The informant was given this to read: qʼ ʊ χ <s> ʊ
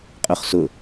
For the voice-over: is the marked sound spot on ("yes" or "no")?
yes